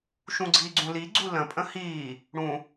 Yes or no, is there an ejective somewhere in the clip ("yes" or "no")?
yes